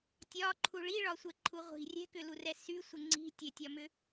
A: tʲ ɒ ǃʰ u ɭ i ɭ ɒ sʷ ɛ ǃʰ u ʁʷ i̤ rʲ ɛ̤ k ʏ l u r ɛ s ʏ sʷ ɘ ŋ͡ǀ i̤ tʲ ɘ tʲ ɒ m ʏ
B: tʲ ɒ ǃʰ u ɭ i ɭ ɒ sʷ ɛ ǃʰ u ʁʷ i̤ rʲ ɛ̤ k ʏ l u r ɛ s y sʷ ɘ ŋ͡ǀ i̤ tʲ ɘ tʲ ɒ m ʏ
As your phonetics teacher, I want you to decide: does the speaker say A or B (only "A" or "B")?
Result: B